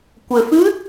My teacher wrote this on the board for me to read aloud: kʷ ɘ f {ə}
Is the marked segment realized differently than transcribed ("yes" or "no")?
yes